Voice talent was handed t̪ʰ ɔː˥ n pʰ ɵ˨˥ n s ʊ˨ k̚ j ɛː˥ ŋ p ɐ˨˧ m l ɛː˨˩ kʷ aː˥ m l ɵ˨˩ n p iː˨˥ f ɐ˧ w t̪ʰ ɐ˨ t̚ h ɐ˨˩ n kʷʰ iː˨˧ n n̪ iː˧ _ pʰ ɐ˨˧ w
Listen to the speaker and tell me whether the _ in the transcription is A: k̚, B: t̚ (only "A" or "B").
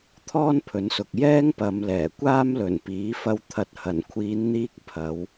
A